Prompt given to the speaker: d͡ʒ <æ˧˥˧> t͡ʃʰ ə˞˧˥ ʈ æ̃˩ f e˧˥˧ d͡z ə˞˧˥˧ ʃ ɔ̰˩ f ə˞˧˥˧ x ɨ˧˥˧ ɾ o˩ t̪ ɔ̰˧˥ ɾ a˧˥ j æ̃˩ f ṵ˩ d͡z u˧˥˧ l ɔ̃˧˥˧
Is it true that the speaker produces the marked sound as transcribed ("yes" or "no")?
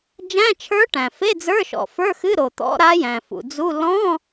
no